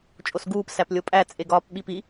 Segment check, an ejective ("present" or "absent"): present